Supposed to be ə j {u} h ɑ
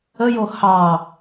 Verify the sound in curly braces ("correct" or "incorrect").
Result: incorrect